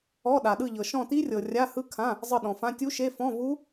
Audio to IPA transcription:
ɔ˧˥˧ ɗa˨ɗɯ˦˨ʎɤ˨ ʃɔ̃˦˨ti˦˥rʲɤ˨ rʲa˧˥˧hɯ˦˥kʰã˧˥˧ | zˤɯ˦˨ɗɔ̃˨fã˧˥˧ tʲu˦˥ʃe˧˥˧ fɔ̃˧˥˧vu˦˥

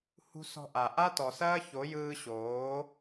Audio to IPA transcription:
hṳ˧ sɔ̤˧ʔa˨ ʔa˦tɔ˨sɐː˦ ço˨˦jɯː˧ɕoː˨˦

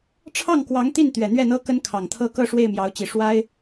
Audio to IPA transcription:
ʈ͡ʂʰɑ˥˩ŋkwɑ˧˥ŋt̪i˥˩n t̪ɥɛ˨˩n̪ɥɛ˥˩n̪ɤ˥ kə˥nkʰɑ˨˩ŋt̪ʰɤ˥ kɤ˥˧ ʂwe˥˩ɪ̯mjɑ˧˥ʊ̯t͡ɕi˨˩ ʂwa˥ɪ̯

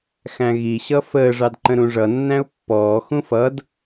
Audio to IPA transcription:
xæ̃ɣiɕʌ fəːʐɑdǃə̃ɾũ ʐʌnːæ̃ʊ̯ pːɔːxũ fʌd

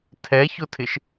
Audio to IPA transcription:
tʰɛçʊtʰɪʃ

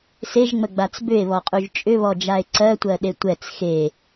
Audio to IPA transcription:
seʒŋ͡məɡ͡bat͡s bʏe̯βɔqʼuʒ t͡ʃʼʏβɔd͡ʒae̯ ǀɜtʷɜɗe tʷɛt͡s xe

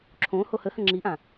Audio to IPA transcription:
ǁʰõ hohəhə̃ ŋ͡ǁiʔã

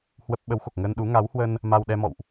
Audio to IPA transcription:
hwə˦˥p̚ ɓə˨˦wxo˨˩k̚ŋə˧nɗu˨˦ ŋa˨˦whwə˧n | ma˧wɗɛ˧mɔ̰˧˨wʔ

